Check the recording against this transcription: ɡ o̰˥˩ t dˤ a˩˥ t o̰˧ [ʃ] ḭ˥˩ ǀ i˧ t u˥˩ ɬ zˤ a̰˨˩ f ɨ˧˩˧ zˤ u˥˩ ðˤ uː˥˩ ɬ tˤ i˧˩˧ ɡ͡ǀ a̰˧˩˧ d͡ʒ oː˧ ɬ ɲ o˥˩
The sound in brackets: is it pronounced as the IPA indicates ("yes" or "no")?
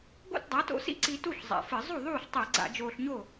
no